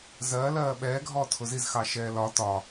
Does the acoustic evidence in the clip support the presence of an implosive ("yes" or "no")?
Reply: yes